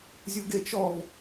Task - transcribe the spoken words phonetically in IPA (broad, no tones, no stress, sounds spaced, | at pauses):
zʲ u ɡ e t͡ʃ ɔ v